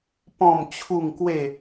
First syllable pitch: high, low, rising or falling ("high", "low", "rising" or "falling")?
falling